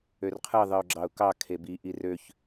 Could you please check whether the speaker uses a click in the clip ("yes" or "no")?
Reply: yes